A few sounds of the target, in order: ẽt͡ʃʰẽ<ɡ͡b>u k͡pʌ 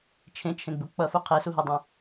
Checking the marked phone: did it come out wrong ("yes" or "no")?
no